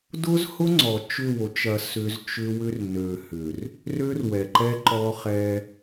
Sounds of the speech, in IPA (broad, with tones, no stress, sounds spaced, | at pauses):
d ʊ˦ z h ʊ˦ ŋ͡ǀ ɔ˨ t͡ʃ ʏ˦˨ w o˨˦ t͡ʃ ɐ˨ s ʏ˦ z t͡ʃ ʏ˦ w ʏ˦ r n ø˨ h ʏ˨ r | r ø˦ r w ɛ˨ ǃ ɛ˦ ǃ ɔ˦ χ ɛ˦